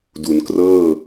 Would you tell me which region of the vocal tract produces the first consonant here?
tongue tip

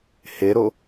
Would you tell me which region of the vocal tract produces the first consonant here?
throat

